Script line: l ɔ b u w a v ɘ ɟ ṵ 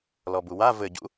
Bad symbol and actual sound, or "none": none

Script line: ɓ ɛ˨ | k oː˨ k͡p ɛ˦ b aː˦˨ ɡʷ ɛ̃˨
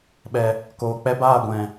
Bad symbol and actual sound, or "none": none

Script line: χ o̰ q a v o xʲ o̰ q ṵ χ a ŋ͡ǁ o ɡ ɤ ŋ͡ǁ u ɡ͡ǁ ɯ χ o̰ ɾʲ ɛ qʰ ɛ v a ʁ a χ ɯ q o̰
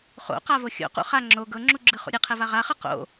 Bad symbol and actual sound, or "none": none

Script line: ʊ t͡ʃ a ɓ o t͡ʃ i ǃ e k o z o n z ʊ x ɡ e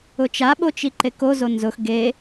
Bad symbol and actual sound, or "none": none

